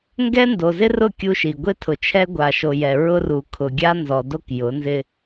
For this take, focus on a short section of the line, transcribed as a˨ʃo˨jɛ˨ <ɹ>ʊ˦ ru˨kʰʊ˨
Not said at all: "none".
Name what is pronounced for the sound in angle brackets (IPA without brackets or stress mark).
ɹ